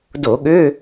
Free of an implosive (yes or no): no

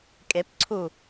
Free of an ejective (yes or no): no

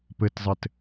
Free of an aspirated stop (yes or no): yes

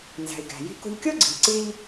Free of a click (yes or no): no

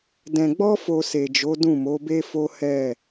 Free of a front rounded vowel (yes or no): yes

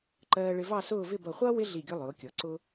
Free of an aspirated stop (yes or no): yes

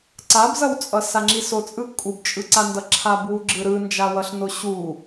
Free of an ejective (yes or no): no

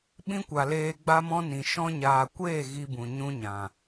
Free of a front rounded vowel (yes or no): yes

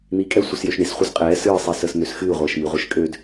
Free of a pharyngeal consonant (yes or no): yes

